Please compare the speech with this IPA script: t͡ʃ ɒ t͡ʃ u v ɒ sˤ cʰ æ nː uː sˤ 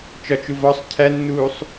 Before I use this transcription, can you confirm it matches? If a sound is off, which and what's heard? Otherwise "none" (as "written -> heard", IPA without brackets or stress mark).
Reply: none